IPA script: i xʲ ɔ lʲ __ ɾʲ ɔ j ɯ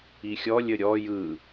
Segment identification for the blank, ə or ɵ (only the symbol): ə